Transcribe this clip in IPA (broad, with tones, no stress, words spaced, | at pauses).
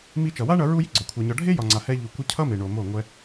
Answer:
mi˧t͡ʃʌ˨wa˦ɳʌ˧ ɹu˦ji˦ɡ͡ǀɒ˨ kʷʰa˨ɲɒ˨ɖʱe˦ jɒ˨ŋ͡ǀa˨ hɛ˧ʎu˨kʷʌ˧ cʰʌ˦me˨ɳo˨ mo˦˨ŋʷɛ˦